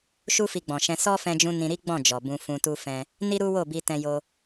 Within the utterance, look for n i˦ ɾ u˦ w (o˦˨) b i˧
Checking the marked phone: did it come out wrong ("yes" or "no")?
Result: no